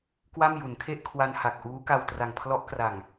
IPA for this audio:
k w a˥˩ m j u˩˦ n kʰ e˥˩ ʔ kʰ w a˧ n h a˨˩ k̚ ʔ uː˦˥ k a˧ w t r a˨˩ ŋ pʰ l ɔ˦˥ ʔ k r a˨˩ ŋ

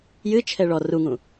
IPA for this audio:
j ɨ t͡ʃʰ ɛ ɭ ɔ r u ŋ ũ

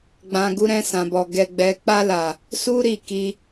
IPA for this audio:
ɡ͡b ã˨ ɡ u˧ ɾ ɛ̃˧ s ã˨ b ɔ˨ ɡ ɛ˨ ɡ͡b ɛ˨ k͡p a˧ l a˨ | s u˦ ɾ i˦˨ k i˧

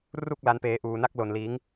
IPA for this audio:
r u˥˩ k̚ l a˦˥ n p eː˦˥ ʔ uː˧ n a˥˩ k̚ l o˧ n l iː˦˥ ŋ

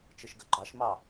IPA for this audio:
t͡ʃ ɯ ʃ ɡ ɵ ɡ͡ǃ ɑ ʃ m ɑ

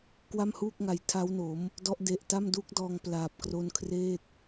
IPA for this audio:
k w a˥˩ m h uː˥˩ k̚ ŋ a˨˩ j tʰ a˦˥ w n o˩˦ m | d ɔ˦˥ ʔ d e˨˩ ʔ t a˥˩ m d u˦˥ k̚ d ɔː˧ ŋ p l aː˨˩ p̚ k r o˦˥ n kʰ r eː˥˩ t̚

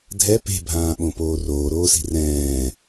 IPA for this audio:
dʱ ɛ p e̤ bʱ ãː ɓ õ p oː r oː ɾ oː s i̤ r ɛ̃ː

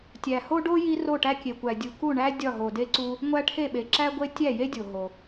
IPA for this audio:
tʲ æ˨ h o˦ ɖ o˦ j i˦ r o˦˨ ʈ æ˦ kʲ e˨ kʷ æ˨ dʲ u˨ k u˦˨ ɳ æ˦ dʲ ɒ˦˨ ɦ o˨ d e˦ ǀ u˦ | ŋʷ æ˦ ʈʰ e˦˨ ɓ e˨ ǁ æ˦ ɡʷ e˦ tʲ æ˦˨ j e˦ dʲ o˨ ɦ o˨

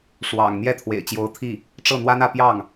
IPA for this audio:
ʂ w ɑ̰˨˩ ŋ n̪ j ɛ˥˩ t̪ʰ w ḛ˨˩ ɪ̯ t͡ɕ j o˧˥ ʊ̯ t̪ʰ i˥˩ | ʈ͡ʂ ɤ˥˩ n̪ w a˥ n ä˥˧ p j ɑ˥˩ ŋ

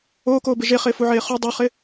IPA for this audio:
oː k oː b ɪ ʒ e χ ɪː f u ʕ eː χ u dˤ o χ ɪ

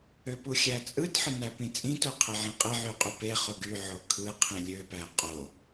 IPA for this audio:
ø p u xʲ æ t͡sʼ ɯ t ħ ɯ n æ p ĩ t͡sʼ ĩ t o qʰ e ʕ ĩ qʼ e ʕ y qʼ y p e χ o ɡ y ʕ o kʰ ɯ qʰ ĩ lʲ ø p æ qʼ o

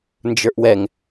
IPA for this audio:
n d͡ʒ ə˞ ʔ w ɛ ŋ

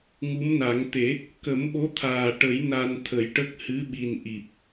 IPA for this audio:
ŋ u˧˥ m n a˨˩˦ ŋ t̪ e˨˩˦ | k ə˨˩˦ m ɓ o˧˥ t̪ʰ aː˨˩ ʈ ə˨˩˦ j n a˧ n t̪ʰ ə˨˩˦ j ʈ ə˦˥ k̚ h ɨ˧˥ ɓ i˨˩ n ʔ i˨˩ p̚

